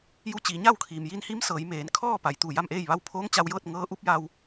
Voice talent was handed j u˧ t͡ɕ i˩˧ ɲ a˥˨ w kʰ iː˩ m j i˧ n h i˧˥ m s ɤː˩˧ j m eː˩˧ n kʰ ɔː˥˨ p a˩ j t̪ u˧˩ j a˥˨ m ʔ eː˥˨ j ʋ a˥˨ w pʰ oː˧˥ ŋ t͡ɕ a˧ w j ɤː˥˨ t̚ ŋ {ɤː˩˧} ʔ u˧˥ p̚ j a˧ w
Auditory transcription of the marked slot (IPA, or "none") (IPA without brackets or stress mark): ɤː˧˥